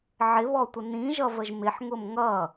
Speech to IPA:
ʕ ɪ β ɔ tʷ ə n ĩ ʒ ʌ v ə ʒ m ɪ ħ ŋ ʊ m ŋ ʌ

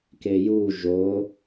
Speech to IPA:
k e j u ʒ o

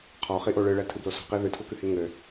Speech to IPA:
qʰ ɔ χ i ʔ o ɭ ɨ ɭ ɛ tʰ ɨ b l o s ɔ̤ q i ð ɨ tʰ u k ɨ h i ŋ ɘ

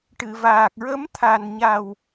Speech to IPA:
ʈ ɨ˨˩˨ v aː˨˩ k̚ ɹ ə˧˥ m t̪ʰ a˨˩ n ɲ a˨˩ w

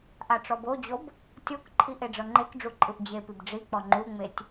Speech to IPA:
ʔ a ʈ͡ʂ ɔ b o d͡ʑ o b | tʲ o k ǃʰ i ʔ e ɖ͡ʐ ɤ ŋ͡ǃ e k ɖ͡ʐ u ǃʼ ɯ ʔ d͡ʑ e p i b ɖ͡ʐ i k͡p ɔ ŋ͡ǃ u ŋ͡m e tʲ

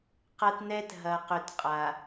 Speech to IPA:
q ɐ˦ t n ɛ˦ t ɦ ɐ˨ q ʏ˨ t qʼ a˨

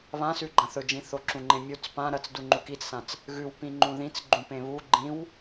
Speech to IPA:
β ã s ʉ ɡ͡ǃ ɐ̃ θ ɵ d͡ʒ ĩ θ o ǁ ũ ŋ͡ǃ ẽ mʲ u t͡s p ã ɾ ɐ t͡s d u ŋ͡ǃ u k i t͡s s ã t͡s | ɣ ʉ w p ĩ ŋ͡ǃ ũ ð ĩ t͡s ɡ͡ǃ ũ p ẽ β u ɡ͡ǃ ĩ w

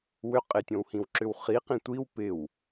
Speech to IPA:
w ʏ qʼ ɪ tʲ õ w h ĩ w ǁ ʏ w χ i q ĩ tʷ i w p ɪ w

